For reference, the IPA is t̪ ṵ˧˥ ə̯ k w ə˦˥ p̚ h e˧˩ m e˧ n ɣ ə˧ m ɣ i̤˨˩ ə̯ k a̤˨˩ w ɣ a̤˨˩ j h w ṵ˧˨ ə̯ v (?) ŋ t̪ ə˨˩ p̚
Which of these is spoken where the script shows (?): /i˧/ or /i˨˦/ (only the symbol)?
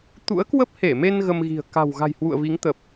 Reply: i˨˦